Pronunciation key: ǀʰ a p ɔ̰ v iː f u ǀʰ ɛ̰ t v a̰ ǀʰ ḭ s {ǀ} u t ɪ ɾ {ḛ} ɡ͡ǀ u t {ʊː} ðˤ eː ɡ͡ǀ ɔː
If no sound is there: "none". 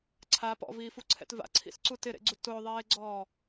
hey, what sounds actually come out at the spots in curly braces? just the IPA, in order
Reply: ǀ, ḛ, ʊː

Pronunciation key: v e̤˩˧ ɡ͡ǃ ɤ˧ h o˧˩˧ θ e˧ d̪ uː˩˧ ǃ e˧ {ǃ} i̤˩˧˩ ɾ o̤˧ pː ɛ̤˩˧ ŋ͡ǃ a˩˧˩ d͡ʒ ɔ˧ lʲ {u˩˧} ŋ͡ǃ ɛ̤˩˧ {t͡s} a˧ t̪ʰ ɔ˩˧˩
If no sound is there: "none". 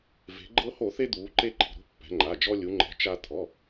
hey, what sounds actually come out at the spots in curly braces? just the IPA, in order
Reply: ǃ, u˩˧, t͡ʃ

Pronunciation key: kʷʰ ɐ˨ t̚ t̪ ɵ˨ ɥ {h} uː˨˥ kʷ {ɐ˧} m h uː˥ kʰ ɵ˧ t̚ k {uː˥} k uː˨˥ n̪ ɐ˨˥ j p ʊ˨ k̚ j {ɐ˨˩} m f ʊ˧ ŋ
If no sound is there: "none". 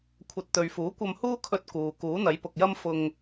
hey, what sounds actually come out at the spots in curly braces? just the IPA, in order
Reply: f, ɐ˧, uː˨, ɐ˥

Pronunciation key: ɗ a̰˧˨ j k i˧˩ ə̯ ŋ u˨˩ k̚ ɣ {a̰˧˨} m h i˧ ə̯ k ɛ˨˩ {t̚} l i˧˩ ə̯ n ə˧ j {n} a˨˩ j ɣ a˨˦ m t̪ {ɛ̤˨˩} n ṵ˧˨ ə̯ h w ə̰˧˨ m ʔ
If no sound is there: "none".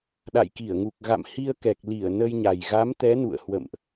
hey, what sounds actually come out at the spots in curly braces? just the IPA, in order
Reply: a̰˧˨, k̚, ɲ, ɛ˨˦

